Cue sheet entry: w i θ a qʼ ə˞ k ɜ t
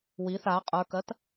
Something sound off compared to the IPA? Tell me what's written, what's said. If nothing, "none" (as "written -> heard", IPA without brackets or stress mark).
none